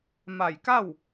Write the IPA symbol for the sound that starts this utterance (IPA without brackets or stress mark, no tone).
m